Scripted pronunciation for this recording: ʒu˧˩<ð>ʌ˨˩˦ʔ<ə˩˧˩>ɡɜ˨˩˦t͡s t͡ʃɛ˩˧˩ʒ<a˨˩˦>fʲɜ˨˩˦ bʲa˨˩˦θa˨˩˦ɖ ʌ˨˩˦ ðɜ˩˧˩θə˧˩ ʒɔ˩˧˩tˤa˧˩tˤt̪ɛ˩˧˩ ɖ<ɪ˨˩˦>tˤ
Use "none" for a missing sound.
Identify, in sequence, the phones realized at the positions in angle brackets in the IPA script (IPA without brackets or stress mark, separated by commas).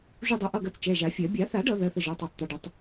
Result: dˤ, ʌ˩˧˩, a˨˩˦, ɪ˨˩˦